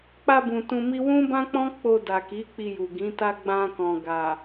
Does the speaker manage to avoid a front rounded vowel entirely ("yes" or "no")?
yes